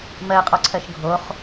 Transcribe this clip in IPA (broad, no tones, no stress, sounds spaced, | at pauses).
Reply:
m ɜ qʼ ɔ ǀʰ ɜ ʃ ɡʱ o χ